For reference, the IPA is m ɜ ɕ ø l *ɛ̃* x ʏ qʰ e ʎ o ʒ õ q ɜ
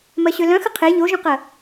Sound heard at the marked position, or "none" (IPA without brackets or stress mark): œ̃